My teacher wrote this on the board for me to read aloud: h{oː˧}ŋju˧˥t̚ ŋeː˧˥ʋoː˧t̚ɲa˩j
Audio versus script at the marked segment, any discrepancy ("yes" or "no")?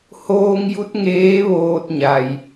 no